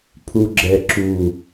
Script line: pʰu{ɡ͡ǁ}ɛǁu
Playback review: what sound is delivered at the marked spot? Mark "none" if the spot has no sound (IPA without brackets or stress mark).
ɡ͡ǁ